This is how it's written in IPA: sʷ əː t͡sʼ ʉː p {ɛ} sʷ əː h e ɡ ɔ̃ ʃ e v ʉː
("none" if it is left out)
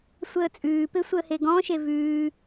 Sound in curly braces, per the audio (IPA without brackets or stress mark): e